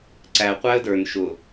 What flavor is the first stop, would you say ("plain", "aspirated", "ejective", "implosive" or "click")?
click